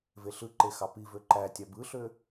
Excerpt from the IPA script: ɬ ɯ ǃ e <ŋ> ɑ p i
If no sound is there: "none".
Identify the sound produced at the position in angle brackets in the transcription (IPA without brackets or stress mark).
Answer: x